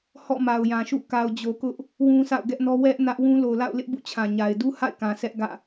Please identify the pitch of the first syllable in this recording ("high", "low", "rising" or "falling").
falling